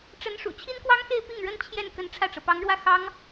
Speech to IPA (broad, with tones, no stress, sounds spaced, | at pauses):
ʈ͡ʂ ə˧˥ n ʂ ṵ˨˩ t͡ɕʰ i˥ n k w ɑ˥ ŋ x e˥˧ ɪ̯ p i˥˩ ŋ ɻ ə˥ n t͡ɕʰ j ɛ˥˩ n k ə˧˥ n ʈ͡ʂʰ ä˥˩ ʈ͡ʂ ɤ˩ p ɑ˧˥ ŋ ɻ w ä˥˩ x ɑ˥ ŋ